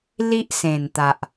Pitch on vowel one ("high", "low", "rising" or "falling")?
high